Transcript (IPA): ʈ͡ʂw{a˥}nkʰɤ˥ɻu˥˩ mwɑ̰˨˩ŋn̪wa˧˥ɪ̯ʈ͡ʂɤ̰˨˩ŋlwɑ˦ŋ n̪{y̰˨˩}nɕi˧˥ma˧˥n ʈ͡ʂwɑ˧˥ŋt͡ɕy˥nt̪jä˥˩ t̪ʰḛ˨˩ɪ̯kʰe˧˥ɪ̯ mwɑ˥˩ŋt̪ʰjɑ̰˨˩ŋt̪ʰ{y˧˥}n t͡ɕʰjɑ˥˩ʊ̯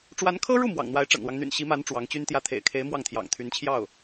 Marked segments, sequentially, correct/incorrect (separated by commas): incorrect, correct, correct